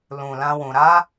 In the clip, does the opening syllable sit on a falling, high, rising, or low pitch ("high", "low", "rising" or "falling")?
low